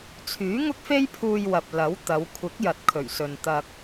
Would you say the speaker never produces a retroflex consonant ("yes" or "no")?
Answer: yes